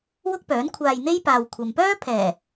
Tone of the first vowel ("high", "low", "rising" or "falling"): high